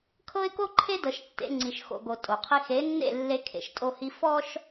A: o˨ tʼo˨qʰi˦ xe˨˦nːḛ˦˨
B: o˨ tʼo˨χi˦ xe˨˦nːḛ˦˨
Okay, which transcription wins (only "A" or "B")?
A